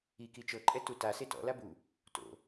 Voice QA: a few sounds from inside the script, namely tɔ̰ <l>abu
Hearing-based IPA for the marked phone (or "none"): l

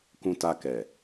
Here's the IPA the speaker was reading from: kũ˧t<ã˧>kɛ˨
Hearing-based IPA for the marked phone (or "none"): a˧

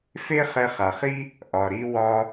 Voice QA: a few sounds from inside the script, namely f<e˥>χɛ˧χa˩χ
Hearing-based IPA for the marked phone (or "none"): e˥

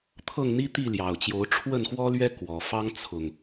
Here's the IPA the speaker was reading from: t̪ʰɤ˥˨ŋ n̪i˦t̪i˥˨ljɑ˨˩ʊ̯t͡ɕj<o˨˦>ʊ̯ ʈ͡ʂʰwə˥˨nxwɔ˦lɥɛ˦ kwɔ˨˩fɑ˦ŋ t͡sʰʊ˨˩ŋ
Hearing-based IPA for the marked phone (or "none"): o˨˦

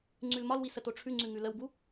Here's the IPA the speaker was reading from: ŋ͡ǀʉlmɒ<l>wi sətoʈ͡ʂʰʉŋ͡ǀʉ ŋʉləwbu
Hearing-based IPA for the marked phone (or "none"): l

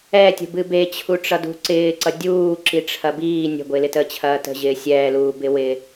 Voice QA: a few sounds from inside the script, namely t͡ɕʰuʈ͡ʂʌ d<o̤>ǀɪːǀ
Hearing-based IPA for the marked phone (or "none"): ṳ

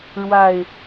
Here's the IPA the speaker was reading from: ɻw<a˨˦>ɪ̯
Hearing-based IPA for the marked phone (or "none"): a˨˩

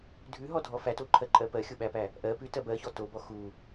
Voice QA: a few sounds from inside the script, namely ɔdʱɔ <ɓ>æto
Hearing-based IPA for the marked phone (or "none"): f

